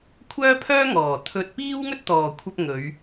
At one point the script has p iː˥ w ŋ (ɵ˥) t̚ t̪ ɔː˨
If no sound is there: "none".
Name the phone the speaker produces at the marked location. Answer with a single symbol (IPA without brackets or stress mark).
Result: ɵ˥